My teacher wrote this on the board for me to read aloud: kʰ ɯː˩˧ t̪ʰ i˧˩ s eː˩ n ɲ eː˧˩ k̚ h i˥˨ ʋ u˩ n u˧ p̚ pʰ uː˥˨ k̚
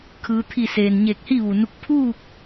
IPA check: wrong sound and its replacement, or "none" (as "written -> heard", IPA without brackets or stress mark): p̚ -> k̚